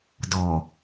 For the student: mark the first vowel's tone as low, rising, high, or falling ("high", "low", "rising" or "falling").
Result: low